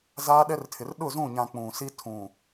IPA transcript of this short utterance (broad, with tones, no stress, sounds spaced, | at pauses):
z aː˦ ɗ ɛ˦ r tʰ ɪ˨ r ɗ ʊ˦˨ z ũ˦˨ ɲ ã˨ k͡p ũ˨ s i˦ tʰ ũ˨